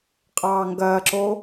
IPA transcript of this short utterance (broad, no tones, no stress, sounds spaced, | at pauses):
qʼ ɑː ŋ ɡ ɐː ǁ o